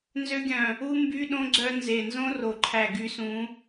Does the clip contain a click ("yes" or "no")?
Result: yes